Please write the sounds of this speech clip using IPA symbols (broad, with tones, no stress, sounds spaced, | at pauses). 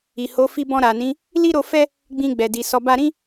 i˨ h o˨˦ f i˧ b ɔ̃˧ ɾ a˨ n ĩ˨˦ | l i˦ ɾ o˧ f ɛ˦ | ɡ͡b ĩ˧ ɡ͡b ɛ˨ d i˨ s ɔ˨˦ b a˦ ɾ ĩ˦